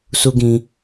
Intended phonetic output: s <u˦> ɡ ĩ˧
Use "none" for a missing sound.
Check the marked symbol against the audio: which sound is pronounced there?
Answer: u˦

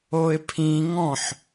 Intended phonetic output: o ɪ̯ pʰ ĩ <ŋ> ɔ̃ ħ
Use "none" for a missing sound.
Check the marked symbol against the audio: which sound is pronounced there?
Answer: ŋ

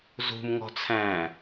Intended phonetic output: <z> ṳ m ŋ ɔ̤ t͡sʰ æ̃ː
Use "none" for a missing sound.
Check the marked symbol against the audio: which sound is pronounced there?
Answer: z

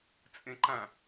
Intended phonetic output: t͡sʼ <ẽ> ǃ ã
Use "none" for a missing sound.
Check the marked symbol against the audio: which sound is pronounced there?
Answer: ẽ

